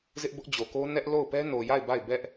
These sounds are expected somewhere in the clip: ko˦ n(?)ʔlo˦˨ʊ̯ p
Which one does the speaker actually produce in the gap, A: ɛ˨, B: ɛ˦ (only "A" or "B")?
B